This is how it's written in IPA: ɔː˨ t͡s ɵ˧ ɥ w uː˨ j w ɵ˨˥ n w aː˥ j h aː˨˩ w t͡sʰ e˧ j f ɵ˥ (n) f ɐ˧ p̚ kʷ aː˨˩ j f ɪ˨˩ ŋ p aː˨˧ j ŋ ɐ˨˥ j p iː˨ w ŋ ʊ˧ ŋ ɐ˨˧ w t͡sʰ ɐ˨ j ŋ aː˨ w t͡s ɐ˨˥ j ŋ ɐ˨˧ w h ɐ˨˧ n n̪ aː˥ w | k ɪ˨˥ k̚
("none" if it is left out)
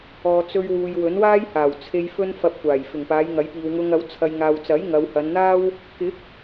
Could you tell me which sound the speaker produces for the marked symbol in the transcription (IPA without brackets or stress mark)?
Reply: n